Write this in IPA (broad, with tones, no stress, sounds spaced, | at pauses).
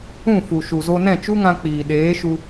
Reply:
ũ˦˨ f u˨ ʃ u˨ z o˧ n ɛ̃˦˨ t͡ʃ u˦ ŋ ã˧ k͡p iː˨ ɗ eː˨˦ ʃ u˧